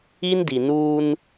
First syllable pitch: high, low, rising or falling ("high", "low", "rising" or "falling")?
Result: high